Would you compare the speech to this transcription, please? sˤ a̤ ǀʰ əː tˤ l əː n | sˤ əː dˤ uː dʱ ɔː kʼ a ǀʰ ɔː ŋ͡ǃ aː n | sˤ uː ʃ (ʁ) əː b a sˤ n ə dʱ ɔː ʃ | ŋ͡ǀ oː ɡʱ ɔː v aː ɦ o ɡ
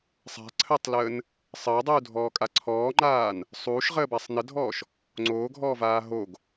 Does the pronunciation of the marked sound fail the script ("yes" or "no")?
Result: no